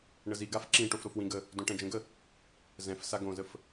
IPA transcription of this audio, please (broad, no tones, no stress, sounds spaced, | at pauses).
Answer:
ɳ ə z i ɡ a f ǁ ĩ ʈ o f ɾ o f w ĩ ɡ ə | d õ ʈ ɛ̃ d͡ʒ ə̃ ɡ ə | z ɛ̃ f s a ɡ õ z ə f